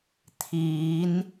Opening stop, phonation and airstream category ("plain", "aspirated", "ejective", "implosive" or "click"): aspirated